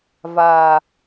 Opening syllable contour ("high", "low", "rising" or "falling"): low